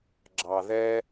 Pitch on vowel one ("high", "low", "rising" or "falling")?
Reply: low